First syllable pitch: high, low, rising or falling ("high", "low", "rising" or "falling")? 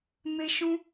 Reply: high